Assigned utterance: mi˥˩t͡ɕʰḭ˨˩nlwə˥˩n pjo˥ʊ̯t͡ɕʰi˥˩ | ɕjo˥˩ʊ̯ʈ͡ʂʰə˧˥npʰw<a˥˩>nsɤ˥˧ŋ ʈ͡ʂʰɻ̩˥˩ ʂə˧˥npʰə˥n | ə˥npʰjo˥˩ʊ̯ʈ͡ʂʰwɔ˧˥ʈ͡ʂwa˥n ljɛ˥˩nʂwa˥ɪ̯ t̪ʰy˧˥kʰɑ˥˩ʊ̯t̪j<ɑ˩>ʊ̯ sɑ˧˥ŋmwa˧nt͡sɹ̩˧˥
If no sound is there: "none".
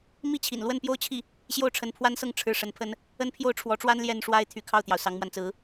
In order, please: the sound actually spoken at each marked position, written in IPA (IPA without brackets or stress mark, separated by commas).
a˥, ɑ˩